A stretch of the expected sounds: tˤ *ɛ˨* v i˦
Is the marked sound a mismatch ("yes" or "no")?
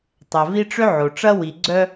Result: no